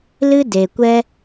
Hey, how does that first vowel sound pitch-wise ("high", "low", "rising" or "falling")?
high